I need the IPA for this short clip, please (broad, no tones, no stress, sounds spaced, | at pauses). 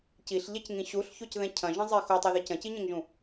c i ɬ ʎ ɛ c ŋ ĩ ɕ u ɬ ç o c ð ɛ̃ cʰ ɐ̃ ʒ ɐ̃ zˤ i x o tˤ i ð i c ɐ̃ c i ɲ ẽ ŋ ʒ ũ